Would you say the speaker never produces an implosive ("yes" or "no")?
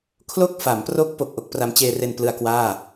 yes